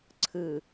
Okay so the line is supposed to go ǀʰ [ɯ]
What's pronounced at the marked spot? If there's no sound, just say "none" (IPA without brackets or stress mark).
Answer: ɯ